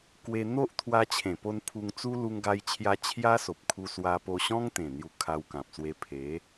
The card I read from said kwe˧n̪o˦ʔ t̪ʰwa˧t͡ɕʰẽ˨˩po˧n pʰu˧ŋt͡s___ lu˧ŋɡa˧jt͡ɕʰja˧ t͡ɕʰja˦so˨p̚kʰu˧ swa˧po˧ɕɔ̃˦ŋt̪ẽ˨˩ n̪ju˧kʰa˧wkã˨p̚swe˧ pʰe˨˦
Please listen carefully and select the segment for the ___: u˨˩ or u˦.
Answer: u˦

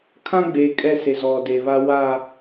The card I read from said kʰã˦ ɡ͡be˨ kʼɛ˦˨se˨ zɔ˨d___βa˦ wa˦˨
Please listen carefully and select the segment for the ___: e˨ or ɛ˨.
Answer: e˨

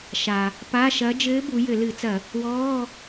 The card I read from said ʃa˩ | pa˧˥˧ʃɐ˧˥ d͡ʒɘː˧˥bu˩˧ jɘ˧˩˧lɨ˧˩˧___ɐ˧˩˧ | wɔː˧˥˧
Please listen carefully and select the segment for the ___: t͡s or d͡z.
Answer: t͡s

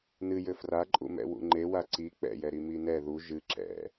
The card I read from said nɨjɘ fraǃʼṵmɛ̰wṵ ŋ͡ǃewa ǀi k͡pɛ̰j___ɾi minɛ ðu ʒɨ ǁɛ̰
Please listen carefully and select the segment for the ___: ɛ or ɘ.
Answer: ɛ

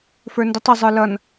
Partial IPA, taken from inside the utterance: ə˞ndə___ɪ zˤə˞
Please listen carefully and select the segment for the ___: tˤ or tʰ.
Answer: tˤ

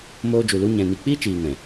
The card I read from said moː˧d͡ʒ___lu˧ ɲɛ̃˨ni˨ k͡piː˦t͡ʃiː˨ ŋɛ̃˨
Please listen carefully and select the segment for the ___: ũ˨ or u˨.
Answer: u˨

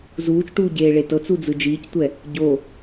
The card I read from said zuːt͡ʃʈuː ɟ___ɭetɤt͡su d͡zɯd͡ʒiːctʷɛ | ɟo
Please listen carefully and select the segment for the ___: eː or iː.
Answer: eː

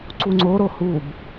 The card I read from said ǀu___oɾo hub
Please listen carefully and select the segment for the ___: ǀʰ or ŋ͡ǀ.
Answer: ŋ͡ǀ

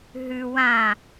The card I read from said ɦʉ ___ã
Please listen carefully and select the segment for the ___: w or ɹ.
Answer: w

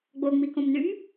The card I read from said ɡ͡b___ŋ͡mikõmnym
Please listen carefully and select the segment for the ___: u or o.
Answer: o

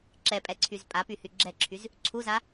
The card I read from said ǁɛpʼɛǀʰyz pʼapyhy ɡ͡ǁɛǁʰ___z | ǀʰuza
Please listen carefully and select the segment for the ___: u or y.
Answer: y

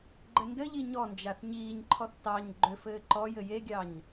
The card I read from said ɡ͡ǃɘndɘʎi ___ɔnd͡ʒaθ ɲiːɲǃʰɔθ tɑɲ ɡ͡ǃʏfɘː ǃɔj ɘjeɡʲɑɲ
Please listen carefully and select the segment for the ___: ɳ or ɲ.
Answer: ɲ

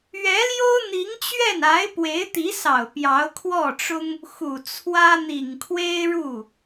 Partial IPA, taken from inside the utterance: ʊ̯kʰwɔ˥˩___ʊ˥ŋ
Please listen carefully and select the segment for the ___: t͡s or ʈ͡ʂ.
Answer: ʈ͡ʂ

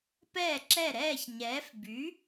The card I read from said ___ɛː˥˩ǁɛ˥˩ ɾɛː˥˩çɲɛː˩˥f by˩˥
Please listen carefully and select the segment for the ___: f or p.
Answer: p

